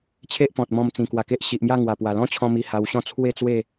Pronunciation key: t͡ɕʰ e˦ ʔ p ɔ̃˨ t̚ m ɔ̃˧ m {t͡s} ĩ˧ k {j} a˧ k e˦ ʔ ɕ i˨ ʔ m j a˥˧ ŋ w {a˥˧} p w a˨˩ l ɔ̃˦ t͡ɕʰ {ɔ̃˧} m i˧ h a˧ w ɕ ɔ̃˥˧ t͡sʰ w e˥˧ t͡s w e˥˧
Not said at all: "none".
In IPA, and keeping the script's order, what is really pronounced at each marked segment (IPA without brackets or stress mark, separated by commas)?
t͡s, w, a˨˩, ɔ̃˧